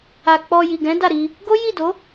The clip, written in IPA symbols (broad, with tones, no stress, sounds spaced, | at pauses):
a˨ k͡p ɔ˧ j i˨ ɡ ɛ̃˨˦ d a˦˨ ɾ i˧ | ɡ o˦ j i˦˨ d o˨˦